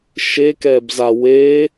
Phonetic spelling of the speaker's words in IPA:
ʃ e k ɛː b z a w e

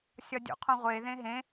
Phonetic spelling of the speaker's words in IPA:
sʲ ɒ dʲ ṵ qʰ ũ ʁʷ e ð ẽ ɦ ẽ

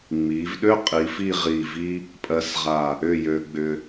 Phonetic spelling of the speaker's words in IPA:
ŋ͡m i˩˧ v ɗ ø˥ qʼ i˩˧ f i˥˧ ʁ i˧˩ v i˥ | pʼ ɜ˧ s ʁ a˧˩ | ʏ˥˧ j ø˧ ɡ͡b ʏ˧

